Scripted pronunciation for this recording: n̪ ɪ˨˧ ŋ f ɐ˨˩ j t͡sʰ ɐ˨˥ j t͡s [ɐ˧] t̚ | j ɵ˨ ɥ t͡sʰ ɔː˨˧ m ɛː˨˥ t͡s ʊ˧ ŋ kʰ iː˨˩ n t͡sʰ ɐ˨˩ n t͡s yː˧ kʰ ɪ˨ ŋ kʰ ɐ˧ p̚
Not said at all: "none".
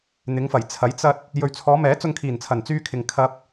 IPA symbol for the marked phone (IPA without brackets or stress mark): ɐ˧